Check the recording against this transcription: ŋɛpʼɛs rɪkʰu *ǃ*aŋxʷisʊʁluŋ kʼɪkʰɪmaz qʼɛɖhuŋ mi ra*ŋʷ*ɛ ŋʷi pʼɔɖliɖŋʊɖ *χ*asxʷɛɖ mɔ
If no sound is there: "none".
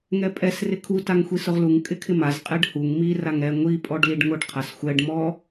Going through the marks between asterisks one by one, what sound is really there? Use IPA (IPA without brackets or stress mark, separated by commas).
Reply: t, ŋ, qʰ